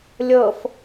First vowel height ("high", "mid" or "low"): mid